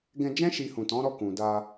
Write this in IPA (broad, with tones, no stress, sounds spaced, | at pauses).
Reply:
ɡ ɛ̃˧ d͡ʒ ɛ̃˦ ʃ i˧ h ũ˨ t ɔ̃˨˦ ɾ ɔ˦˨ k ũ˨ d a˧